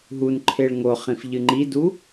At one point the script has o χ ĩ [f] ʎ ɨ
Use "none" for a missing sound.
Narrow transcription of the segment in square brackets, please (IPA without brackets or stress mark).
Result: f